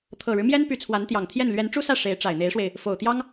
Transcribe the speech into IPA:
t̪ʰ ɤ˨˩ ɻ ɻ̩˦ m j ɛ˥ n p y˧˥ t͡sʰ w a˧˥ n t̪ j ɑ˨˩ ŋ t̪ʰ j ɛ˥˩ n l ɥ ɛ˧˥ n ʈ͡ʂ u˥ s ä˥˩ ʂ e˧˥ ɪ̯ ʈ͡ʂ a˨˩ ɪ̯ n̪ e˧˥ ɪ̯ ʂ w e˧ ɪ̯ | f o˨˩ ʊ̯ t̪ j ɑ˥ ŋ

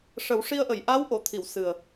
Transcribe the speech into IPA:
ʂ ə˨˩˦ w ʂ i˧ ə̯ ʔ ə˨˩˨ j ʔ a˧˥ w ʔ o˨˩˨ t̪ʰ i˨˩˨ w s ɨ˨˩ ə̯

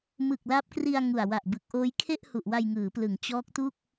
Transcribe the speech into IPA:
m ɯ˨˩ k̚ l a˦˥ p̚ k r i˧ a̯ ŋ u˨˩ a̯ w a˨˩ ʔ b ɯ˨˩ k̚ ʔ oː˦˥ j kʰ e˥˩ ʔ h u˨˩ ʔ w a˧ j ŋ ɯː˩˦ p l ɯ˩˦ ŋ t͡ɕ ɔː˦˥ k̚ t u˥˩ k̚

